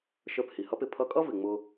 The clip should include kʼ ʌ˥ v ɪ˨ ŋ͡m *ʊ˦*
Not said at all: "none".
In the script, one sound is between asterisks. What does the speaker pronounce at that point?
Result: ʊ˦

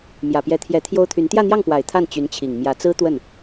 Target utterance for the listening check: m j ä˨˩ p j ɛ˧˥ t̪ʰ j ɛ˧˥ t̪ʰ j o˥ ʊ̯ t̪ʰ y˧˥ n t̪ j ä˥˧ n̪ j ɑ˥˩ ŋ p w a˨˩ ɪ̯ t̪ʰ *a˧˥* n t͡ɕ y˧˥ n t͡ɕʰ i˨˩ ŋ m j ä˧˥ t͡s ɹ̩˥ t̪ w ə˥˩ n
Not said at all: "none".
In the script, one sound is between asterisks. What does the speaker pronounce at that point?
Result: a˥˩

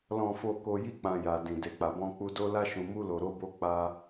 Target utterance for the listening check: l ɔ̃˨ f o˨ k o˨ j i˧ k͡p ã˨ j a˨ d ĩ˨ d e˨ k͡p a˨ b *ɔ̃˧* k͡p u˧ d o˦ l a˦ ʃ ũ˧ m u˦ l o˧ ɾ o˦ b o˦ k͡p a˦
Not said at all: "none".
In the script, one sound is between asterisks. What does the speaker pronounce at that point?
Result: ɔ̃˧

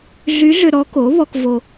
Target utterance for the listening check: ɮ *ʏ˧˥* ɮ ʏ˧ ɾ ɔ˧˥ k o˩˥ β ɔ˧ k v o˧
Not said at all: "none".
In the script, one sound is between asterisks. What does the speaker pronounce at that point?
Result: y˧˥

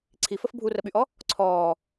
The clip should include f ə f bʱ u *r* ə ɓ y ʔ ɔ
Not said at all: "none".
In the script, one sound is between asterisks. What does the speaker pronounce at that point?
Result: r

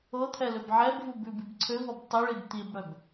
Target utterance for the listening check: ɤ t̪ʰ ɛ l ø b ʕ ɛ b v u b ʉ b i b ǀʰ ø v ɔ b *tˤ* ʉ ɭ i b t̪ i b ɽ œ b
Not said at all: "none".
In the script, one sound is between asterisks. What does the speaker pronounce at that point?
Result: tˤ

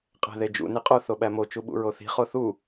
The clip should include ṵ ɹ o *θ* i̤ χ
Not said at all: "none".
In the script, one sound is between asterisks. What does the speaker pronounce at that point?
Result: θ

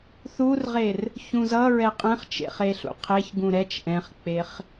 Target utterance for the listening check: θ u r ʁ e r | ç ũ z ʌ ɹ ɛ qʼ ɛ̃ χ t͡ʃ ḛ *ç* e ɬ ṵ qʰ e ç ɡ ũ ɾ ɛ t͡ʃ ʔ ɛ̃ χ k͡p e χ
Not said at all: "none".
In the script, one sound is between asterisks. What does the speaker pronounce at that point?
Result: χ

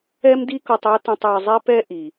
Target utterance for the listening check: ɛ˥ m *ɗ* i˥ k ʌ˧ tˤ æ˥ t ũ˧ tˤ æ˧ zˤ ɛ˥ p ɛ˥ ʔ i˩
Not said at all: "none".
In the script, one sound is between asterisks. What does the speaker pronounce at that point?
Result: d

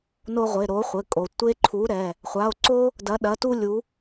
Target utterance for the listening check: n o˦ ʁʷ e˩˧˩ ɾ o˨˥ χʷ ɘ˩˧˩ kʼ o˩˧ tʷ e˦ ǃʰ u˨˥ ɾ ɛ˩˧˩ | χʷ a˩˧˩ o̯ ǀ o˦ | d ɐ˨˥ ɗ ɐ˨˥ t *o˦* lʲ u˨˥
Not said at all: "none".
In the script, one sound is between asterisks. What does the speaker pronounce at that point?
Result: u˦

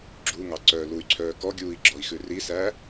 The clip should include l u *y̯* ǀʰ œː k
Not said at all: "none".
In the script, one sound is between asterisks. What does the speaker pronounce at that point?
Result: y̯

